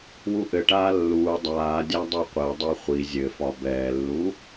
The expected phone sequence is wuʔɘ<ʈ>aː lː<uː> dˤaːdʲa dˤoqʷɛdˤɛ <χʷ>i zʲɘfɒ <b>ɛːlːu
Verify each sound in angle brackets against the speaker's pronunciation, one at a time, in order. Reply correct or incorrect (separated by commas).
correct, correct, correct, correct